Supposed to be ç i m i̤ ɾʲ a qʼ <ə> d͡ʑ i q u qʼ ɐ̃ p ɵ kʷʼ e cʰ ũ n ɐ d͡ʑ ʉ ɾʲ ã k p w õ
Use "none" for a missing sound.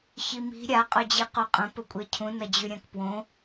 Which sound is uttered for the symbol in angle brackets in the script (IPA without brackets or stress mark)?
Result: ɵ